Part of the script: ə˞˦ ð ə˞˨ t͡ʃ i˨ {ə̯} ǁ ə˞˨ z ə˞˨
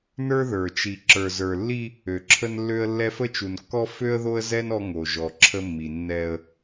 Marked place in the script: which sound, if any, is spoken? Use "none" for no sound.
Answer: none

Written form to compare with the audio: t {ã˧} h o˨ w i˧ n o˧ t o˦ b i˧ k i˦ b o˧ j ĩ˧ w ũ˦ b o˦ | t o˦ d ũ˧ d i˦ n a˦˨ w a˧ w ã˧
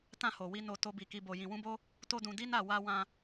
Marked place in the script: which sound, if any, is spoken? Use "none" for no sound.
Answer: ã˧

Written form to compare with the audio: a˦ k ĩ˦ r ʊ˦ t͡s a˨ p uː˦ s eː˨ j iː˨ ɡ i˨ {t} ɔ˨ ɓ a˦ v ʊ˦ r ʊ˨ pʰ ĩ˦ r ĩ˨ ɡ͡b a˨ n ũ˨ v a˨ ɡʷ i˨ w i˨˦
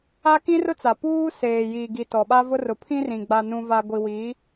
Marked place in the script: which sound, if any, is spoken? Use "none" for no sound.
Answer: t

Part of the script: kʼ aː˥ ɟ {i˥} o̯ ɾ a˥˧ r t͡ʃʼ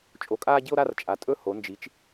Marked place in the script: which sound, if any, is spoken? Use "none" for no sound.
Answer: i˥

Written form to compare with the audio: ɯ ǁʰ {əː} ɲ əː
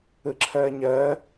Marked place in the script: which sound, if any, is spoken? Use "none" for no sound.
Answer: əː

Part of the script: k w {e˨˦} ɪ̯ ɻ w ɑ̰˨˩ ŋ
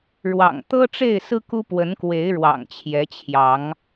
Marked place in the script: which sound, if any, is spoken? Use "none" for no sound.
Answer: e˨˦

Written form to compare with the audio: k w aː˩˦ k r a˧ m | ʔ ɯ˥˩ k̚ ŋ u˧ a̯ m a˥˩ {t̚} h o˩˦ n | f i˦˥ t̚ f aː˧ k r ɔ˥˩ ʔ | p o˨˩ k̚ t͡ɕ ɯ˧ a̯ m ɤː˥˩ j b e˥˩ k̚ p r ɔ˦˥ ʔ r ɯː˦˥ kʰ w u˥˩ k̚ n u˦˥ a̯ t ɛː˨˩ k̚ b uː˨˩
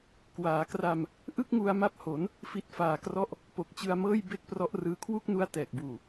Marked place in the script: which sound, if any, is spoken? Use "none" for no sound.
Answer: p̚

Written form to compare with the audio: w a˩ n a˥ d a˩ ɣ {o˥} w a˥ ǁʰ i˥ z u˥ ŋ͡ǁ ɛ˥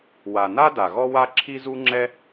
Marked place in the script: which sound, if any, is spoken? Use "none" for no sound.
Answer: ɔ˥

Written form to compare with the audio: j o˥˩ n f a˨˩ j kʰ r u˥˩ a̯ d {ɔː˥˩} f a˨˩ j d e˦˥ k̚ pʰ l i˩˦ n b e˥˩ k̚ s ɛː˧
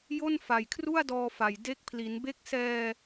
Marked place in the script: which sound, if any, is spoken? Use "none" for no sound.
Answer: ɔː˧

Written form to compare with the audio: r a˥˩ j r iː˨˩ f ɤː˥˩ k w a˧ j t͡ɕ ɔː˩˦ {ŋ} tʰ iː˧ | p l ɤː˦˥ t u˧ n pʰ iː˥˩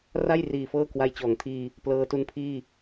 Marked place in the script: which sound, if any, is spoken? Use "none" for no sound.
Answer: ŋ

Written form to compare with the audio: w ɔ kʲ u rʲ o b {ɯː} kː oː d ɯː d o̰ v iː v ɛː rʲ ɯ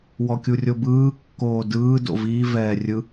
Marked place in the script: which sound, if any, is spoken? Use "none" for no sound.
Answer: ɯː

